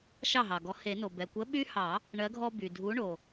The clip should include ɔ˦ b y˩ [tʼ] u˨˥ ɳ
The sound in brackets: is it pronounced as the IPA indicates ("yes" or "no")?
no